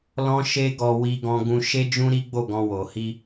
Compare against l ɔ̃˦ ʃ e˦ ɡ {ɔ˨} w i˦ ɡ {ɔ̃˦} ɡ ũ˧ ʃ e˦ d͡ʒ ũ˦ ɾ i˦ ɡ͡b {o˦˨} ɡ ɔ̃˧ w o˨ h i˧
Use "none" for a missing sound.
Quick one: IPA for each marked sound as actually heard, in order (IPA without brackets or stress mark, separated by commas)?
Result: ɔ˧, ɔ̃˦, o˦˨